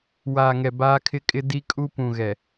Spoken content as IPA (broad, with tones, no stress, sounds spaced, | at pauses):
w aː˨ ŋ ɛ˨ b aː˦ kʰ ɪ˦ kʼ ɪ˦ d i˦ kʼ u˦ p ũ˨ ɣ ɛ˨